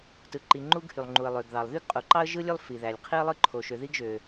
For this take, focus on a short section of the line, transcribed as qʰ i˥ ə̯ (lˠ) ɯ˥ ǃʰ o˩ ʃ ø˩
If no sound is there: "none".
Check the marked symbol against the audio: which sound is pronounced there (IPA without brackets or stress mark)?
lˠ